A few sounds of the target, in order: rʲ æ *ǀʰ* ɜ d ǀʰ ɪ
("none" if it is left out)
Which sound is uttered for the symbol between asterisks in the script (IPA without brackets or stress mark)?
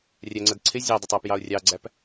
ŋ͡ǀ